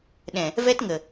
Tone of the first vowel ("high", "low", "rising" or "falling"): low